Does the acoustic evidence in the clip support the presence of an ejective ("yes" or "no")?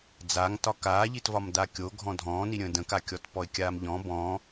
no